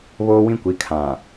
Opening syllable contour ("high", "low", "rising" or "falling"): high